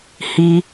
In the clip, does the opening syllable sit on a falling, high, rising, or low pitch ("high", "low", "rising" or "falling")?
high